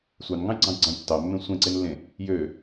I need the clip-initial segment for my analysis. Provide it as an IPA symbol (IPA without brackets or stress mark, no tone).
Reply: sʷ